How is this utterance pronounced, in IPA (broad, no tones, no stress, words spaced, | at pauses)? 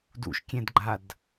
dṵʃkʲɛ̃dɡ͡ǃad